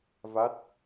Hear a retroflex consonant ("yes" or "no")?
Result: no